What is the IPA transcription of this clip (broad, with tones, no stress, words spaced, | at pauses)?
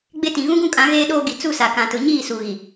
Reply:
ɡ͡be˦tĩ˨ ɣũ˦ɡũ˦kʼã˨˦ ɣeː˦ɗoː˦ɡi˨ t͡su˦˨sa˨kã˨tʊ˨ ɲiː˦˨su˨ ɣi˨